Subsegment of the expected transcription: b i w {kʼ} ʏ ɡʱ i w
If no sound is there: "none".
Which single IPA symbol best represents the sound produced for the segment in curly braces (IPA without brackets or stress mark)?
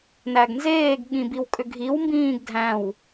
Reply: kʼ